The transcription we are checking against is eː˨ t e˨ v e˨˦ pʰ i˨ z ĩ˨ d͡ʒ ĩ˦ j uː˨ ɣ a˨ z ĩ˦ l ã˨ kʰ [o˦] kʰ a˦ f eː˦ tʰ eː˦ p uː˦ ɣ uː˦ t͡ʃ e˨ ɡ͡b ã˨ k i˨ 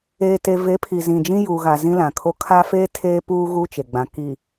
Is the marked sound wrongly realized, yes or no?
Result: no